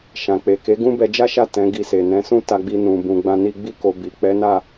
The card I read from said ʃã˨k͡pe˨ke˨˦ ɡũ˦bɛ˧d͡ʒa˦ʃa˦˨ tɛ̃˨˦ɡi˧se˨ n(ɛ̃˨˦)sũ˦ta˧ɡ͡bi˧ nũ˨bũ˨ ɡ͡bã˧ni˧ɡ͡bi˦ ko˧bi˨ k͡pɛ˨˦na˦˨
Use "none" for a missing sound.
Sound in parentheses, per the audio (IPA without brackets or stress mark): ɛ̃˨˦